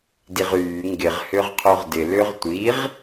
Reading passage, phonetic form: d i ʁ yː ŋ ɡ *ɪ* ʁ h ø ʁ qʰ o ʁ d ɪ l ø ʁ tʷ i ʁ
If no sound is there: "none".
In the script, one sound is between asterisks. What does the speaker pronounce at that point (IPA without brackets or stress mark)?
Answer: ɪ